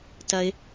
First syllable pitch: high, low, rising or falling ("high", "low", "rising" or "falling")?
high